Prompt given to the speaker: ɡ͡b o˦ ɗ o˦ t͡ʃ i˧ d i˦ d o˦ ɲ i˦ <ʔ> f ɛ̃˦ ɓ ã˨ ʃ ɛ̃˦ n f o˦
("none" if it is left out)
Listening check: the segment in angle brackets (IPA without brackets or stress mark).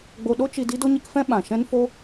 k